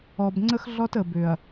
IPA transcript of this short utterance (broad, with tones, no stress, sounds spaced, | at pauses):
ɔ˨ b ŋ͡ǀ ə˦ x ɮ ɔ˦ t ə˨ b ʏ˨ ɐ̯